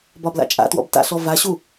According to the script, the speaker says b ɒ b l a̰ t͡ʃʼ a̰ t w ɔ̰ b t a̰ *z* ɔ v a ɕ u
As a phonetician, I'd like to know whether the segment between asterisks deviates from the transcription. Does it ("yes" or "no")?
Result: yes